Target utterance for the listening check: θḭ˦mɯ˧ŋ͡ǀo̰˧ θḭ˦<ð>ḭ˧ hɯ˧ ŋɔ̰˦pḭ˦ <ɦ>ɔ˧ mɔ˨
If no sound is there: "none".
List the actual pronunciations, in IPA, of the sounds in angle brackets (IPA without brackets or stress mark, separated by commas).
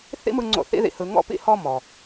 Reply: ð, h